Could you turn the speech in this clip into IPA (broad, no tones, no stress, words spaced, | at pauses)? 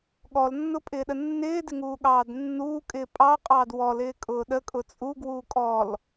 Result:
ɠɔlnːʊpʼɪːɗə nːɪːdɪŋuːɠɑːd nːuːkʼɪː pʼɑqʼɑːd wɔlɪːkʼʊː ɗəkʼʊ t͡sʼuɡwuː kʼɔl